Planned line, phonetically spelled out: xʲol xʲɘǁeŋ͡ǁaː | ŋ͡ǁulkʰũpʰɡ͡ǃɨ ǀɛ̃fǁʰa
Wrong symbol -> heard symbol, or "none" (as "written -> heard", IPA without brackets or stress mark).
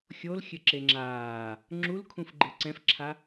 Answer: pʰ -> f